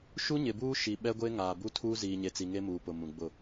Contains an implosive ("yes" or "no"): yes